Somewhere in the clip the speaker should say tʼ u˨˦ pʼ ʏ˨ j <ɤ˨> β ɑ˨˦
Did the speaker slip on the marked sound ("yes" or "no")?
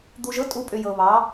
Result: no